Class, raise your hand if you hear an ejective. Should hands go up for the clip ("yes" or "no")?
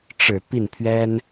no